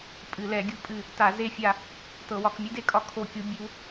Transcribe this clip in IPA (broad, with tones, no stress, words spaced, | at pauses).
pʼɨ˧˩˧lɛ˧˩˧ɡʲu˧˥pʼɨ˦˨ | ta˧˩˧ze˦˨ fʲa˦˨ | tɤ˧˩˧wɒ˧˩˧k mʲɨ˧˥de˦˨kʼɒ˧˥ kʰo˦˨kʲu˧˥ bʲu˧˥